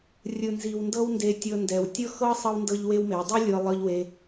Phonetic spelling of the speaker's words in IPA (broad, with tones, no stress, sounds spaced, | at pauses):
rʲ ɯ˨ n z i˨ w n d ɤ˦ w n d e˧ tʲ ɤ˧ n d ɛ˨ w tʲ ɤ˦ x ɤ˦ sˤ ɤ˦ w n d ɤ˦ ʎ w e˦ w m e˨˦ w dˤ ɯ˦ lʲ ɤ˧ lˠ ɤ˦ ʎ w e˦